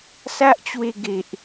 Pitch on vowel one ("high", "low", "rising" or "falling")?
high